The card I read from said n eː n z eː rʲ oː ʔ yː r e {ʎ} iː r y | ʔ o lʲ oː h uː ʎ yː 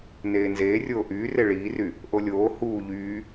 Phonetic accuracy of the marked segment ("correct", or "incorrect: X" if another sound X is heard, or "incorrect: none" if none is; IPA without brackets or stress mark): incorrect: ɭ